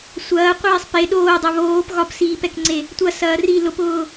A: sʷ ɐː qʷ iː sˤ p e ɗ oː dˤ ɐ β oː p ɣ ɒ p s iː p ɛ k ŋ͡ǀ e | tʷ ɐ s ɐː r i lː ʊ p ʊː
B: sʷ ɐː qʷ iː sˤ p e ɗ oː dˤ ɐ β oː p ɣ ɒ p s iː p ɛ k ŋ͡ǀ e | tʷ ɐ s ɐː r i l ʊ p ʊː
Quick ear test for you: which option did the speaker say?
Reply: B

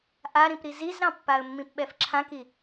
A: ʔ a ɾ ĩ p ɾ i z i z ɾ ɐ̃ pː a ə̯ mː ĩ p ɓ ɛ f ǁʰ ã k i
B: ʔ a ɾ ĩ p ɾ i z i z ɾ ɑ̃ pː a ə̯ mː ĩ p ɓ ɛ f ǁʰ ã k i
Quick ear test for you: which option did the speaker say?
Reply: B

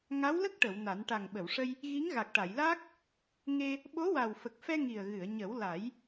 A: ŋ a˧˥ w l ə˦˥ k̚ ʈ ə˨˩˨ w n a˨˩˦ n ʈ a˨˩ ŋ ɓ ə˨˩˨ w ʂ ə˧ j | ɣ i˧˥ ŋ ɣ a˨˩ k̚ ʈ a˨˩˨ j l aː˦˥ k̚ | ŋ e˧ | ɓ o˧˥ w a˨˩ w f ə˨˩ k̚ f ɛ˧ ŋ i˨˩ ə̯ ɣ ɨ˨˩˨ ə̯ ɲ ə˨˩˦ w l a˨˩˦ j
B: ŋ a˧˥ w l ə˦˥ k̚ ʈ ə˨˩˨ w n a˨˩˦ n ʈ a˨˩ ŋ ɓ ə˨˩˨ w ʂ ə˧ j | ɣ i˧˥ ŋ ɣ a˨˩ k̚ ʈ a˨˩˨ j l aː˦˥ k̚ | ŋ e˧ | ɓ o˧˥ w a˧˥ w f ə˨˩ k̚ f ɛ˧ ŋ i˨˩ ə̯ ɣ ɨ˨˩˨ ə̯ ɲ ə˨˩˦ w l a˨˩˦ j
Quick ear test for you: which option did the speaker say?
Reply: A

